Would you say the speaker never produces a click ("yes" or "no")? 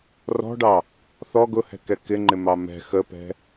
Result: no